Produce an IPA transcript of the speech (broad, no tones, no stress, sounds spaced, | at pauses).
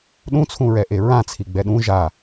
ɗ ũ t͡sʰ ũ ɹ ɛ ʔ e ɹ ã t͡sʰ i ɡ͡b ɛ ɗ ũ ʒ a